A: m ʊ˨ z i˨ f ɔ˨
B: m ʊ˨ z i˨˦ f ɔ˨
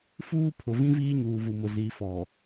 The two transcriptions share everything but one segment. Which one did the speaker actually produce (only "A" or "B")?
B